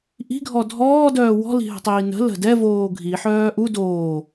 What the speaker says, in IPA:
ʔ i̤ ɡʱ ɔ dʱ ɔː d œː w ɔ̤ l i̤ ɦ ə̤ tˤ iː n ə̤ l ə̤ d ɛ v oː ɡʱ i ħ œː ʔ u d oː

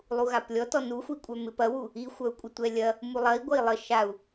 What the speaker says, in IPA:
lˠ u ɣ a p lʲ ɔ t ɔ n u xʷ i kʷʼ œ m ɪ p ɐ w u | i xʷ œ u̯ kʷʼ ɪ tʷ ɛ lʲ ɐ | m u lˠ ɐ i̯ ɡʷ ɐ i̯ lˠ ə ʃ a u̯

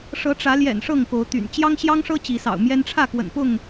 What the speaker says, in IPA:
ʂ ɤ˨˦ ʈ͡ʂ ä˨˦ l j ɛ̰˨˩ n ʂ ɤ˥˨ ŋ k o˨˦ ʊ̯ t̪ y̰˨˩ n t͡ɕ j ɑ˦ ŋ ɕ j ɑ˦ ŋ ʂ ɤ˦ t͡ɕ i˨˦ s ɑ̰˨˩ ʊ̯ m j ɛ˦ n ʈ͡ʂʰ ä˥˨ k w ə̰˨˩ n p ʊ˥˨ ŋ

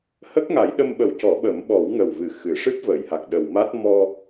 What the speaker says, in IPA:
h ə˦˥ k̚ ŋ a˨˩˦ j ɗ ə˧ m ɓ ə˨˩˦ w c ɔ˨˩˦ ɓ əː˨˩˦ m ɓ ɔ˨˩˦ w ŋ ə˨˩ w v ɨ˨˩ x ɨ˨˩˨ ʂ ɨ˦˥ p̚ v əː˨˩˨ j h a˨˩ k̚ ɗ ə˨˩ w m a˦˥ t̚ m ɔ˧

